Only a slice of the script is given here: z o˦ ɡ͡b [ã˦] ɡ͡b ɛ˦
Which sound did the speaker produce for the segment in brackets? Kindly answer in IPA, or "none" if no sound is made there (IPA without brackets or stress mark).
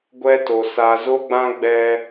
ã˦